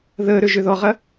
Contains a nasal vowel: no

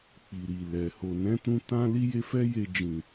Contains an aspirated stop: no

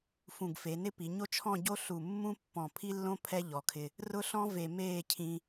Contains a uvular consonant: no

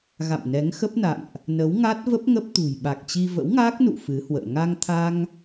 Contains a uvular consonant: no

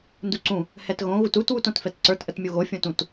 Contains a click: yes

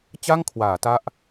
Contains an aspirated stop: yes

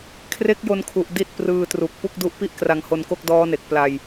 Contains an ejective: no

